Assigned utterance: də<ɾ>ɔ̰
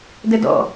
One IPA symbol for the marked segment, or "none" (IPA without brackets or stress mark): d